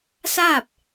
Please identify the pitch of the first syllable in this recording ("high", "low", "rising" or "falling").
falling